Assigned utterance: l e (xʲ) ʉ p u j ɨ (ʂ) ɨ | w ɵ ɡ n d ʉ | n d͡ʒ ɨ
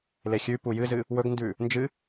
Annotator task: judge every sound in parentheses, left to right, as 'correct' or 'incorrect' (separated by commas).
correct, incorrect